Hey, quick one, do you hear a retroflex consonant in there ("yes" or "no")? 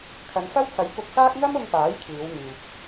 no